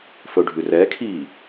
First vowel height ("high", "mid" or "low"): mid